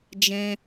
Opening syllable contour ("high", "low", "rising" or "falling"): high